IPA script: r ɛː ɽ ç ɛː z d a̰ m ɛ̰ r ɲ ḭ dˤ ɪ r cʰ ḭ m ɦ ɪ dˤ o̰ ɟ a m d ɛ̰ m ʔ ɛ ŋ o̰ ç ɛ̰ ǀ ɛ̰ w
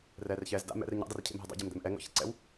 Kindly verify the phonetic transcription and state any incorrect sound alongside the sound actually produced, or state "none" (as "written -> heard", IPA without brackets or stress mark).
ɽ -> r